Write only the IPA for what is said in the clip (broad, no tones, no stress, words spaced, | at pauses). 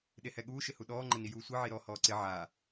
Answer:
ɗehɛɠuː ʃɪhuɗɔː ŋ͡ǃɪnijuːsʷi ʕiɾɔ hɔːǀɪ ʕa